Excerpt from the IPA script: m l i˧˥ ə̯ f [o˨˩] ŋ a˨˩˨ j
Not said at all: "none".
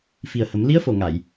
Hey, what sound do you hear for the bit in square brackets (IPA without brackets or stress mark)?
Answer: o˨˩